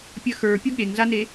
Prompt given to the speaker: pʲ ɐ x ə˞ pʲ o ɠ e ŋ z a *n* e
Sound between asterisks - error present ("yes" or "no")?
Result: no